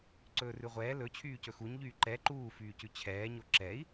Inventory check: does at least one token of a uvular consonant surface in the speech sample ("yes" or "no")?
yes